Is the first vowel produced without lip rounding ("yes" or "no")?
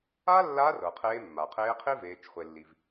yes